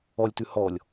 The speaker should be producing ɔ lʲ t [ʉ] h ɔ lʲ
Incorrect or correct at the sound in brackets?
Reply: correct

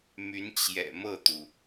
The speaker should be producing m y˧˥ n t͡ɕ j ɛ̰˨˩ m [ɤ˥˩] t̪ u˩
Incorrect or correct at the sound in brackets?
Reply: correct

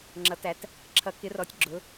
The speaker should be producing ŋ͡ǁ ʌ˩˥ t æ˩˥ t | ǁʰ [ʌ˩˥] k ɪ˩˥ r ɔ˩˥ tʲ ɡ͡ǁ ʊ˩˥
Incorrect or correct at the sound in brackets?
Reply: correct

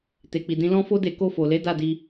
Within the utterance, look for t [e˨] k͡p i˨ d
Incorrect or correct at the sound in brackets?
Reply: correct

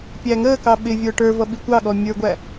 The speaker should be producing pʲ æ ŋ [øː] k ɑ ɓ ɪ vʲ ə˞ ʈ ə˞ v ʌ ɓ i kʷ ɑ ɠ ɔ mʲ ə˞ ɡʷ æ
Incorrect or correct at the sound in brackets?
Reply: incorrect: əː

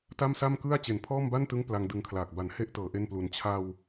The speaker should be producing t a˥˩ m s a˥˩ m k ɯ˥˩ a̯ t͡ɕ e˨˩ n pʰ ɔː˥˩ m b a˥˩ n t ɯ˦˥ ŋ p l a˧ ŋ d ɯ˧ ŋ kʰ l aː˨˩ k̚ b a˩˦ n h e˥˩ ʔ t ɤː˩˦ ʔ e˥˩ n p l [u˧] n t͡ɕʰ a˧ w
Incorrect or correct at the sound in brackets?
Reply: correct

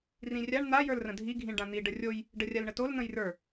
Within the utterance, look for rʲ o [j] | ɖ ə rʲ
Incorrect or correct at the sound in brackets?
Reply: correct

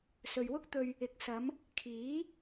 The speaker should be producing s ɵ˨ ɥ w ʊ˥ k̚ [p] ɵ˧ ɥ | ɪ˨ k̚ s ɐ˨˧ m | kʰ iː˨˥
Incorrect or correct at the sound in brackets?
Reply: incorrect: t̪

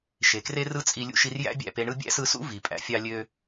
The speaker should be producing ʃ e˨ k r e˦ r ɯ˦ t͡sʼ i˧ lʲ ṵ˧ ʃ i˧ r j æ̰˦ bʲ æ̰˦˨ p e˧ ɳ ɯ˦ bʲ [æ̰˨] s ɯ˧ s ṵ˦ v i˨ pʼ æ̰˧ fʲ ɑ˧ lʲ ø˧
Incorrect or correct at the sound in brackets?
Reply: incorrect: æ̰˦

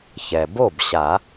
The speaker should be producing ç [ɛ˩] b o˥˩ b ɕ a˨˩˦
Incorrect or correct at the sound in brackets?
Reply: correct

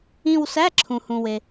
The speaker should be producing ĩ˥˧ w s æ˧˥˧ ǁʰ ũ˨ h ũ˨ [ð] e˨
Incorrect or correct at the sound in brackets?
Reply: incorrect: w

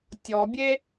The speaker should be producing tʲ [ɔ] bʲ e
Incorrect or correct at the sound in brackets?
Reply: correct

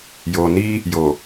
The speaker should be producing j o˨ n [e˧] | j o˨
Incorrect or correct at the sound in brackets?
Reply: incorrect: i˧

